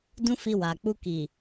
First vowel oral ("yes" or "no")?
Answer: no